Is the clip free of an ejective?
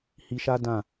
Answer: yes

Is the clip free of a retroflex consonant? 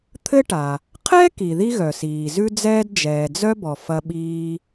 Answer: no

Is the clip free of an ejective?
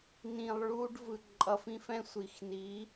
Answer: no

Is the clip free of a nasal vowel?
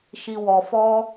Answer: yes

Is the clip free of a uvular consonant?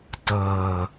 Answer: yes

